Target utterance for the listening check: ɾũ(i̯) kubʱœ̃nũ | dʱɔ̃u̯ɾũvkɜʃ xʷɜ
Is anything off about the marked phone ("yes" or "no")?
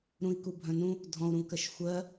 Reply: no